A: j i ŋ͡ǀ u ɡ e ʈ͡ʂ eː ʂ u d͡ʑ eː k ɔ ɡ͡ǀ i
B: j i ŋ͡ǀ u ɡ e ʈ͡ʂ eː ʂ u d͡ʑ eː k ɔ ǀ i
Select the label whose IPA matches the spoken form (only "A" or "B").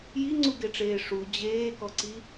B